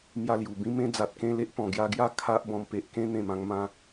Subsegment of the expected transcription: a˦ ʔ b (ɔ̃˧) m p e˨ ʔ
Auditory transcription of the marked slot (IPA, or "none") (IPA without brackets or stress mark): ɔ̃˧